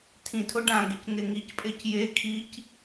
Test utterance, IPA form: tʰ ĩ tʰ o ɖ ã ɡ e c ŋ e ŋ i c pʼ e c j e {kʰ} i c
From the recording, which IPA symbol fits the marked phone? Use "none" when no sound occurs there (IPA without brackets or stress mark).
kʰ